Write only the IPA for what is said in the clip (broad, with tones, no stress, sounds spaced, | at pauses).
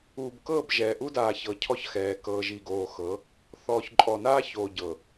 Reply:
uː˨ b k ɤː˦˨ b ʒ ɛː˨ ʔ u˦ d aː˨ ç ɤ˨ cʰ ɔ˦ ç x ɛː˨ k ɤː˨ ʒ i˨ ɡ oː˨ x ɤ˨˦ | θ ɔː˨ ç ǃʼ ɔ˨ n aː˦ ç oː˨ ɟ ɤ˨